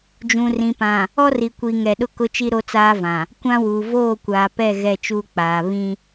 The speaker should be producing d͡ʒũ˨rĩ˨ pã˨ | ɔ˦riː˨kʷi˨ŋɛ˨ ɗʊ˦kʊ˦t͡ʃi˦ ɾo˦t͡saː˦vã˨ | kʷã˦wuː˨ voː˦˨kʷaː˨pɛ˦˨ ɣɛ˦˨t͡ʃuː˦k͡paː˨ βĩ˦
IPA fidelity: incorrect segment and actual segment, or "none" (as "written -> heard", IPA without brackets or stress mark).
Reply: iː˨ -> i˨